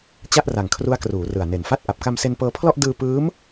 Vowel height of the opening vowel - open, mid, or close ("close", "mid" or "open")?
open